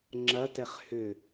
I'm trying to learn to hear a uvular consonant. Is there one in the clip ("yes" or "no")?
yes